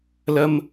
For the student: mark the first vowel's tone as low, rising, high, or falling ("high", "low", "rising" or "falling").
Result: high